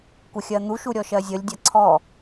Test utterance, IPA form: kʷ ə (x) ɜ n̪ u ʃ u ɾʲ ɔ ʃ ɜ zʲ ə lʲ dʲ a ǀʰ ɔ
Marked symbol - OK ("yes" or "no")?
no